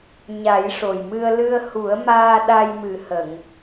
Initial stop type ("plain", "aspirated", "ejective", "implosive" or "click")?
implosive